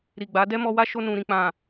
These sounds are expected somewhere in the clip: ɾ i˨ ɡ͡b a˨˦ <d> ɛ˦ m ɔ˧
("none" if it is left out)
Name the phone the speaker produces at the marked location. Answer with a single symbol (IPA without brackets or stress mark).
d